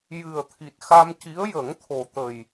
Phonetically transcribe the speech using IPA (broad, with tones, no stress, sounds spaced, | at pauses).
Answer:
j ɨ˨˩ ə̯ t̪ʰ i˨˩ t̚ x a˧ m c i˧˥ ə̯ j ə˨˩˦ ŋ t̪ʰ o˨˩ t̪ ə˨˩ j